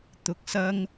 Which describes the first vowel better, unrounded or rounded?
rounded